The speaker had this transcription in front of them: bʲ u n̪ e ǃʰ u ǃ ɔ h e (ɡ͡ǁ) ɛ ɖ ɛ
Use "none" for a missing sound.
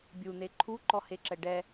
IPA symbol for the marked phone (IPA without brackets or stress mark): ǁ